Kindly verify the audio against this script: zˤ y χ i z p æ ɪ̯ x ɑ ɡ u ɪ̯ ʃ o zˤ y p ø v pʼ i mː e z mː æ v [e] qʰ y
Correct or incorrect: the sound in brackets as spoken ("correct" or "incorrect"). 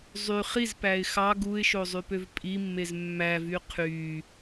incorrect